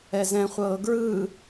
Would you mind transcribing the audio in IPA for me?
ɛ z ɛ̃ χʷ ɤː ɡ ɹ ɯː

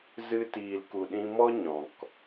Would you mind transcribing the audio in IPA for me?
z ɨ˧ t iː˨ l k u˨ ɗ ĩ˧ m ɔ˦ ɲ ɔ̃˨ k

